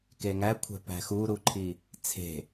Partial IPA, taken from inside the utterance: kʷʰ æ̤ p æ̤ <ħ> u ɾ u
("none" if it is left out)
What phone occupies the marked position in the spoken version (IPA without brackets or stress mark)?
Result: x